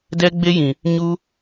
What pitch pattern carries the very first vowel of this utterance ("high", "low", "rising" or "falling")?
high